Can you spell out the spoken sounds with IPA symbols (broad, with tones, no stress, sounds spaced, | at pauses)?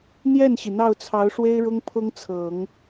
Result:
n̪ j ɛ˥˩ n ɕ i˩ n̪ ɑ˥˩ ʊ̯ t͡sʰ ɑ˧˥ ʊ̯ ʂ w e˥ ɪ̯ ɻ ʊ˥ ŋ pʰ ʊ˥ ŋ t͡sʰ ɤ˨˩˦ ŋ